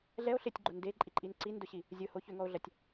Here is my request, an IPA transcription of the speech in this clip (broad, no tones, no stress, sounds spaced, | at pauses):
ɮ ɛ o̯ ɬ ɪ tʲ ɡ͡ǃ o n d e ǃʼ i ǃʼ i n ǀ i n d ʊ ɕ i | zʲ ʊ h o ç ʏ ŋ ɔ o̯ ɮ ɐ tʲ